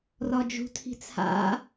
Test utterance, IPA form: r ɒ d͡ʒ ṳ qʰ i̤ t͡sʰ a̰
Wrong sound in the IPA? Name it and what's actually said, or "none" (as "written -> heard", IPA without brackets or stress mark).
qʰ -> tʰ